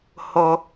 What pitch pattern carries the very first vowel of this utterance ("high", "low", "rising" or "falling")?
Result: low